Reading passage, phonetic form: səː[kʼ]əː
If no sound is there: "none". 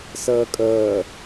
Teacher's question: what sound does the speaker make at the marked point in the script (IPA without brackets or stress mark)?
kʼ